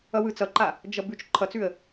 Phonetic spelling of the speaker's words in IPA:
ʌwɯt͡sʌǃa | d͡ʒʌbʉt͡ʃ ǃʰʌt͡sʉə̯

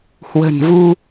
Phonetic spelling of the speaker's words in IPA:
hwə̤˨˩n vu˧

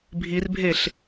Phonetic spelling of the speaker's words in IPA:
bʱirbʱeɬ

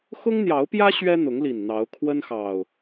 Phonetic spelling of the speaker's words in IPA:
xʊ˦ŋn̪jɑ˨˦ʊ̯pjä˦ ɕɥɛ˦n̪ʊ˨˦ŋli˨˩n n̪ɑ˨˦ʊ̯kʰwə˦nxɑ˨˩ʊ̯

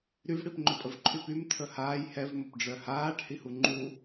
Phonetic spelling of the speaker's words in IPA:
ɾyvɽipŋ͡ǃøpʼəv ǃʰypym tʰəhaːj hɛvməpɖ͡ʐœ haːʈhi huŋ͡ǃu

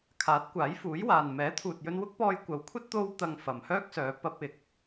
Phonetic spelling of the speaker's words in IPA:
kʰaː˨˥t̚kʷaː˨˥jfuː˨˥jwaː˨n mɛː˨˥t̪ʰuː˨t̚jɵ˧n wʊ˥k̚pɔː˧jkʷɐ˨˥wkʷʰɐ˥t̚ t̪o˧w t̪ɐ˧ŋfɐ˨mhœː˥k̚sœː˨˧ pɐ˧p̚ɪ˨˥k̚

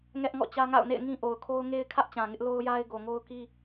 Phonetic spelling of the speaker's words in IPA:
ŋɛ˦ʔŋɔ̰˦˨t͡ɕä˦ŋa̰˦˨ʊ̯ nḛ˦˨ɪ̯ŋĩ˦ʔo˨ʊ̯kʰo˦ʊ̯ ŋe˦ɪ̯kʰä˦ʔ t͡ɕã˨ŋɪ˦ʔlo˦ʊ̯ ja˦ɪ̯ɡo˨ŋo˦ʊ̯ki˦

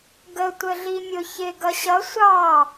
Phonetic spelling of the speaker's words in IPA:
ɡə tʷəɮimʲʊ çɪ ɡʌɕʌ sʷɑ

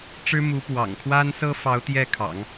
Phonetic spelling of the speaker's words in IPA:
ʈ͡ʂɻ̩˥mu˧˥pwɑ̰˨˩ŋ kʰwa˥nsɤ˥fɑ˧˥ʊ̯ t̪jɛ˥˩kʰɑ̰˨˩˦ŋ

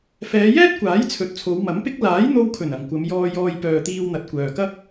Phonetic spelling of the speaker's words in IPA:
fɛː˨˧jɛː˥t̚kʷaː˨˥j t͡sʰɵ˨t̚t͡sʰo˨˧wmɐ˨˥mpɪ˥k̚ laː˨˥jn̪o˧wkʰɵ˨˩n ɐ˨˩ŋkʷɐ˨˧mjɔː˧ jɔː˧jpœː˨t̪iː˧wn̪ɐ˨t̚ kʷœː˨kɐ˥k̚

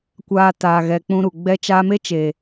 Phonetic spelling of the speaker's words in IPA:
kʷaː˧taː˨ ɣɛ˨k͡pũ˧ɾu˨ ɡ͡bɛ˦t͡ʃaː˦ me˦t͡ʃeː˨

